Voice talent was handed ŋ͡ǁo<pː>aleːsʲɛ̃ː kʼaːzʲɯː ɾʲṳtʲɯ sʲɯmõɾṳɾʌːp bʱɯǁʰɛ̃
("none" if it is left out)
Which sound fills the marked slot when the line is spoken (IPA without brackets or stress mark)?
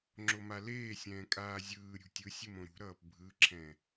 m